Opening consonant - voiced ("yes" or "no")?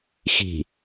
no